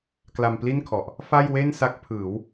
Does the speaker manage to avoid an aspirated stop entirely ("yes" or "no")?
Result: no